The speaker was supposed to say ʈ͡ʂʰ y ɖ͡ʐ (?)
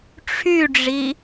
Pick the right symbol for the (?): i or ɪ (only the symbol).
i